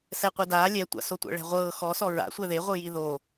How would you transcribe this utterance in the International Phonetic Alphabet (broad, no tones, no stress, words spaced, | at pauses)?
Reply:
sɛqʷedaː lʲɛtʷa̰so tʷɛ̰ɭɛ̤ʁʷɤː xɔsɔ ɹa̰ sʷɛðeʁʷɯ jiðo